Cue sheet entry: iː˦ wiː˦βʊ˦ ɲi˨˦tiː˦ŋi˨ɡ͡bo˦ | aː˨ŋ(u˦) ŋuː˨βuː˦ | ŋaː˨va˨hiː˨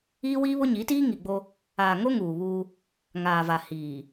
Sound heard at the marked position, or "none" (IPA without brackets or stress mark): o˦